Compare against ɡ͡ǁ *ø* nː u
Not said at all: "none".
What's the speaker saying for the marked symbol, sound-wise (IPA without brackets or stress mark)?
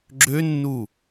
ø